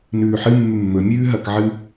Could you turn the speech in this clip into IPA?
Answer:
nʉːħɨ mːʉmːɵ mʲʉːɦɐk ʕɨ

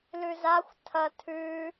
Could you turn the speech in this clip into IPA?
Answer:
lʉzaxʷ tʰɐ tʰʉ

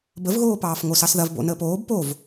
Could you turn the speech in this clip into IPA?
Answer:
bəvɣoːpɑːf ŋosɑsðɐv bo̰ nəːpoːb pov

